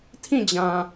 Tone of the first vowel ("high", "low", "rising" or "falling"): falling